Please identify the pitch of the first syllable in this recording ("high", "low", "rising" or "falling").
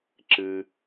low